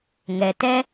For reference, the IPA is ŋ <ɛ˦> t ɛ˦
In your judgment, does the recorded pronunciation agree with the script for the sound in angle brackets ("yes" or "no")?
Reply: no